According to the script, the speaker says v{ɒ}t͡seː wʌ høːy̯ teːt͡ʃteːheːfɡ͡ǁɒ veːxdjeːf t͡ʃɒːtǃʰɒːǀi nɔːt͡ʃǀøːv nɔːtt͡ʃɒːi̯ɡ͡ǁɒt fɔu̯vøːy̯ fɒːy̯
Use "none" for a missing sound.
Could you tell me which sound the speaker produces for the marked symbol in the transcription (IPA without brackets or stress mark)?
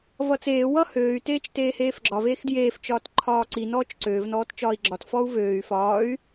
ʌ